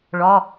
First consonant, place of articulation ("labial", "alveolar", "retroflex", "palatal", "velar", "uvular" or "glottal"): retroflex